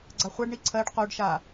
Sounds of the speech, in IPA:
ɡ͡ǀ a χʷ a ɖ ɳ i ǀʰ ɜ ɖ q o ɖ ʃ a

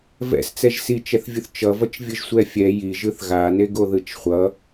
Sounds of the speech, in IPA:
v ɛ̰ s t͡s ɛ ʒ s i t͡ʃ ɛ θ vʲ u θ t͡ʃ ʌ v ʌ t͡ʃ vʲ ɯ ʒ sʷ ɛ fʲ ɛ j i ʒ ɯ θ ɣ a n e ɡ o ð ɯ t͡ʃ χʷ ʌ

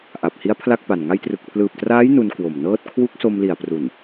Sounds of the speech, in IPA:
ʔ a˨˩ p̚ h i˦˥ a̯ pʰ l a˥˩ k̚ p a˨˩ n ŋ a˧ j t r ɯ˨˩ k̚ pʰ l ɯː˨˩ p̚ t r aː˦˥ j n u˧ n k w o˨˩ m n ɤː˥˩ t̚ kʰ w u˦˥ k̚ s o˧ m l i˨˩ a̯ p r u˨˩ n

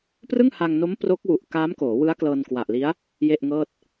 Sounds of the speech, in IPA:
p r ɯ˥˩ ŋ h a˧ ŋ n o˦˥ m p r o˦˥ k̚ w u˨˩ ʔ k aː˦˥ m k oː˩˦ w ɯ˦˥ a̯ k l ɤː˧ n k w a˨˩ ʔ l i˦˥ a̯ | j e˥˩ ʔ ŋ ɤː˥˩ t̚

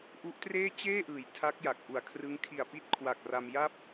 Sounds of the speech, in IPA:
ʔ u˦˥ ʔ t r eː˥˩ t͡ɕ eː˥˩ ʔ ɯː˩˦ j tʰ a˦˥ k̚ j a˨˩ k̚ ʔ u˨˩ a̯ kʰ r ɯ˦˥ ŋ kʰ i˨˩ a̯ p i˦˥ t̚ kʰ w a˨˩ k̚ r a˧ m j a˥˩ p̚

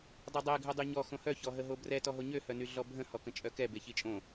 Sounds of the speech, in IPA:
dˤ o dˤ ɛ ɡʱ œ dˤ y ɲ ɔ x õ h œ ç ɔ ɦ ə ɦ o b r ɛ t ɔ ɦ o ɲ ø h œ n y ɮ ɔ bʱ ə̃ h ɔ k ə̃ t͡ʃʼ œ k ɛ b e ç i t͡ʃʼ õ

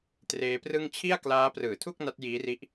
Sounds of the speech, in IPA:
t r eː˦˥ p r ɯ˥˩ ŋ t͡ɕʰ i˥˩ a̯ k l aː˦˥ p r ɯː˨˩ tʰ u˥˩ k̚ n a˦˥ t̚ j iː˦˥ r i˦˥ ʔ

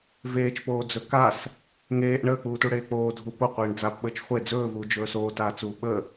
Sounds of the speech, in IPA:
v eː t͡ʃ p oː d͡z ɵ k a s | ŋ eː ʔ ɳ əː k͡p uː t u ɽ eː k͡p oː dʱ u p o qʷ eː ɳ d͡z a p ɓ əː t͡ʃ χʷ e d͡z ɵː v uː d͡ʒ ɵː s oː t aː t͡s uː ɓ ə

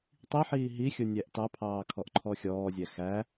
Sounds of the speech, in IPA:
tˤ i ħ iː ɦ i xʲ ʊ nʲ æ ʔ t ɑ pʰ ɑː kʰ ɔ ʔ ǃʰ ɔ xʲ ɔː zʲ æ x æ

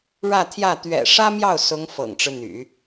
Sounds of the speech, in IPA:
ɻ ä˥˧ t̪ʰ j ä˥˩ t̪ ɥ ɛ̰˨˩ ʂ ä˥ m j ɑ˥˩ ʊ̯ s ʊ˧˥ ŋ f ɤ̰˨˩ ŋ ʈ͡ʂ ɻ̩˦ n̪ y̰˨˩˦

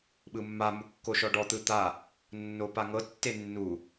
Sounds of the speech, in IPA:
ɓ ɯ mː a m u kː o ʃ ɔ ɖ ɔ t̪ ɯ t̪ a | nː o p a ŋ ɤ tː e nː u

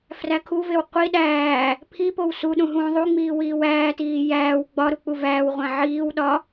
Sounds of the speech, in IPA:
f r æ kʰ u v e w qʷ i ɗ æː | pʰ i p o w s u ɗ ũ ɦ ũː ðˤ u ŋ͡m iː w iː w æː t iː j æː w ɡ͡b ɒ ɾ u k͡p u v æː w ʁʷ æ̃ ʕ iː w ɗ ɒ

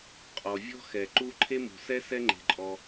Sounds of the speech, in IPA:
qʼ ɔ˩ vʲ ɔ̤˥ x ɛ˩ ǃ u˥ ǃʰ e˥ m ṳ˩ s ɛ˥ s ɛ˥ ŋ͡ǃ e̤˩ ǃʼ ɔ˩

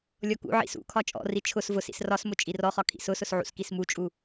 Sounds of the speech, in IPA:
lʲ ɔ k ṵ ʕ ḭ s ṵ kʰ ɒ t͡ʃʼ ɔ̰ r i t͡ʃʰ ʊ s v ʊ s ḭ s r ɒ s m ʊ t͡ʃʼ i r ɔ χ ɒ kʰ ḭ s ʊ s ʊ s ʕ ṵ s k i s m u t͡ʃʼ u

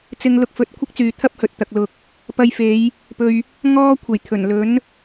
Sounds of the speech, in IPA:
t͡s ɪ˧ ŋ l ʊ˧ k̚ f ɵ˨ t̚ kʷʰ ɪ˥ k̚ t͡s yː˨ t̪ʰ ɐ˥ p̚ h ɵ˨ t̚ t̪ ɐ˨ k̚ l ʊ˨ k̚ | p ɐ˧ j f e˨˧ j | p ɵ˧ ɥ | ŋ ɔː˥ kʷʰ e˨˩ j t̪ʰ ɵ˨˩ n l ɵ˨˥ n

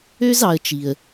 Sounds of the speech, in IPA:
ø˦ z ɑ˨ ə̯ t͡ʃ i˩ ə̯

